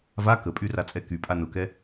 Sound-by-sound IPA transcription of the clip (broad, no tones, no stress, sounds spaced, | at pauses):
v a k ə pʼ y r a t͡sʼ ɛ k y pʼ a n ʊ k ɛ